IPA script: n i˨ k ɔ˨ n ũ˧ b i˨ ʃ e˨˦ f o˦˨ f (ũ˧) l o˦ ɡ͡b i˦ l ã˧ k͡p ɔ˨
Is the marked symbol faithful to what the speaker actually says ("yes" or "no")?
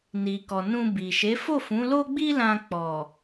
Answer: no